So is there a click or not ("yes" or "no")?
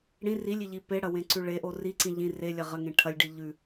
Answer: yes